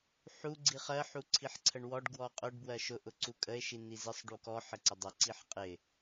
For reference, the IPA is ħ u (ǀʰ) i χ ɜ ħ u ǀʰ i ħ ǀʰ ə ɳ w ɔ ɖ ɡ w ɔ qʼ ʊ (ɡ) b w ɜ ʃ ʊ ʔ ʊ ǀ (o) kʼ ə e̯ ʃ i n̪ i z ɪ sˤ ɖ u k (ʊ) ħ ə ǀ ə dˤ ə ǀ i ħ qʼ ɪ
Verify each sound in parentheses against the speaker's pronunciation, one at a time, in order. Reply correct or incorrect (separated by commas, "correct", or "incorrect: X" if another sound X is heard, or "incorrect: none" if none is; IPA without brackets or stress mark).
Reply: incorrect: ɡ͡ǀ, incorrect: ɖ, incorrect: u, incorrect: ɔ